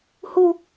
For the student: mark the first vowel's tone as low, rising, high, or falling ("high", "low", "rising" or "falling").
high